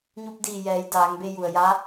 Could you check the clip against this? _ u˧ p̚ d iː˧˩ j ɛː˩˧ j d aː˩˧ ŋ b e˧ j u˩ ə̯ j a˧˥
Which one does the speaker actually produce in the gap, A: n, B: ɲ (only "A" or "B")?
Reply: B